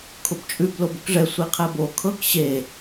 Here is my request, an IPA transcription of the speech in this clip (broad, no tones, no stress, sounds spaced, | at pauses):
kʰ ʊ b t͡ʃʼ ʉ b l o b ʊ k ʐ ɛ sʷ i qʰ ɛ b o kʰ ɤ k ɕ e